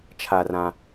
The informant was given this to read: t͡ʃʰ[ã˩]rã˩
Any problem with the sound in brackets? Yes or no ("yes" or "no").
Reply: yes